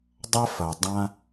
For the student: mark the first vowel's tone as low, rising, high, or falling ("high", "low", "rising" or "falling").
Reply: high